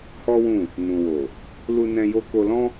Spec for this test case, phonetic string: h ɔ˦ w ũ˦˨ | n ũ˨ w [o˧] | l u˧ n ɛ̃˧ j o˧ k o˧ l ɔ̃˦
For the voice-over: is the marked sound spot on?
no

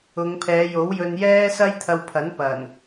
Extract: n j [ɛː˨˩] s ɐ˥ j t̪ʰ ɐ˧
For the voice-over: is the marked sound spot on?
no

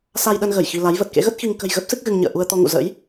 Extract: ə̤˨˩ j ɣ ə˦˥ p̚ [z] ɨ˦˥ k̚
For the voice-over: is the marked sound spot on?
no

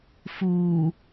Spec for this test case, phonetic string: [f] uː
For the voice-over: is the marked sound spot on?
yes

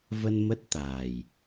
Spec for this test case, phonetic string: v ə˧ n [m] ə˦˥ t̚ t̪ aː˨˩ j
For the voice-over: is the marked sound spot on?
yes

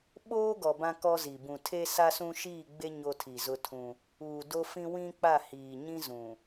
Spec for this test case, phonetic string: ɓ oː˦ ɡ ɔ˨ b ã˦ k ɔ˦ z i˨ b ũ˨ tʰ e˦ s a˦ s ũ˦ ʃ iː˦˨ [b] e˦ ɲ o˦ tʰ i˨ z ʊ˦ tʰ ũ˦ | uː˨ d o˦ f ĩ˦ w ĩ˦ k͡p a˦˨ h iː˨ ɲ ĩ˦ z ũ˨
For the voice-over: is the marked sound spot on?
no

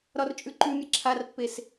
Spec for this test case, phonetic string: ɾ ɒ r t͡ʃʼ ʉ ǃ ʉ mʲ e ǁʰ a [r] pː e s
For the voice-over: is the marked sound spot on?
yes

